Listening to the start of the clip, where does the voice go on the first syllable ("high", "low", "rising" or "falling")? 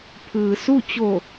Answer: low